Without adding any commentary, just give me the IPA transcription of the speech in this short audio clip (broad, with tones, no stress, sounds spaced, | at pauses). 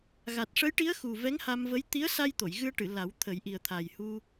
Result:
ɣ a˨˩ t̚ ʂ ə˧˥ j ʈ i˧˥ ə̯ x u˨˩ v ɛ˧˥ ŋ h a˧ m v ə˧˥ j t̪ i˧˥ ə̯ s a˧ j t̪ o˨˩˨ j ɣ ɨ˧ ə̯ ʈ ɨ˨˩˨ l a˨˩˦ w t̪ʰ ə˨˩˦ j ʔ i˨˩ ə̯ t̪ʰ a˨˩ j h u˧